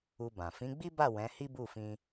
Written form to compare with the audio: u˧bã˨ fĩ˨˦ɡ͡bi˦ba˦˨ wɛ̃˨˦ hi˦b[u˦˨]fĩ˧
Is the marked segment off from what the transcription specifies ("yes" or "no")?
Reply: no